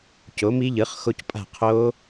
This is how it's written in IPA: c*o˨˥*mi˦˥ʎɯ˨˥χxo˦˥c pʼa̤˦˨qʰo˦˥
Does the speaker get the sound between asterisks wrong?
no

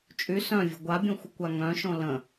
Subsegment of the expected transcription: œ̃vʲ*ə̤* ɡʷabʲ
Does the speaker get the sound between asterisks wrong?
no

